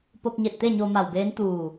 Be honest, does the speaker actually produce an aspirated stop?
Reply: no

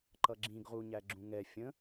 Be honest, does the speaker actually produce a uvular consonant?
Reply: yes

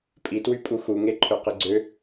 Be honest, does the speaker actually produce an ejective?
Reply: yes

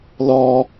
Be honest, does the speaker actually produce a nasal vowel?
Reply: no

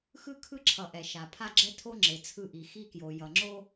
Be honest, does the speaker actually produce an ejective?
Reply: no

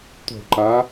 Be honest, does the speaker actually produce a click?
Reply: yes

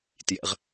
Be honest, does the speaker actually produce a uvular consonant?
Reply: yes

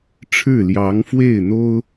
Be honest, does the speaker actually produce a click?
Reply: no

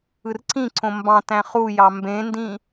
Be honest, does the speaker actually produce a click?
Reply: yes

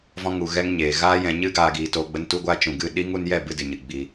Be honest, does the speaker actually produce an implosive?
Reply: yes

